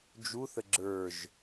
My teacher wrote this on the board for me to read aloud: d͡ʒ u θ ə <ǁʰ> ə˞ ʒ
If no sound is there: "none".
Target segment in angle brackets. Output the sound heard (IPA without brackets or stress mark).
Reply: ɡ͡ǁ